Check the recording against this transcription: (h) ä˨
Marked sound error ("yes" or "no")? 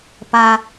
yes